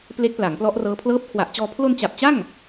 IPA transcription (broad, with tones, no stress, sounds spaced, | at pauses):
p l e˦˥ k̚ p l a˩˦ ŋ p l ɔ˦˥ ʔ r ɤː˦˥ pʰ l ɤː˦˥ p̚ kʰ w a˨˩ ʔ t͡ɕ ɔː˧ pʰ l o˧ n t͡ɕ a˨˩ p̚ t͡ɕ a˥˩ ŋ